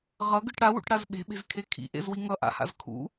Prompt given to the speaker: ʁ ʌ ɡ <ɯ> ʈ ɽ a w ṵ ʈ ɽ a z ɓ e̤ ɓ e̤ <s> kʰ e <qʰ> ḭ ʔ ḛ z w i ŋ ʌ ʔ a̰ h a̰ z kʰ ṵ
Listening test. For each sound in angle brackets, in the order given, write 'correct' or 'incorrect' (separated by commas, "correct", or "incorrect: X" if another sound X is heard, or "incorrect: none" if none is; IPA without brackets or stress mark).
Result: correct, incorrect: z, incorrect: kʰ